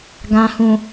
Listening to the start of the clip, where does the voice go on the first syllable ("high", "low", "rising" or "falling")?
low